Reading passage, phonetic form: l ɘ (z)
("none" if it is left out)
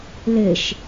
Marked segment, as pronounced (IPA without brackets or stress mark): ʃ